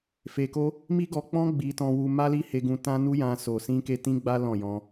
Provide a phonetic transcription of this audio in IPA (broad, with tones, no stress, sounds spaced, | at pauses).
f e˧ k o˦ | m i˦ ɡ ɔ˧ k͡p ɔ̃˦ ɡ͡b i˧ t ɔ̃˧ w u˧ m a˦ l i˦ h e˧ ɡ ũ˧ t ã˦ n u˦ j ã˧ s o˨ s ĩ˧ k e˧ t ĩ˦ ɡ͡b a˦ l ɔ̃˦˨ j ɔ̃˧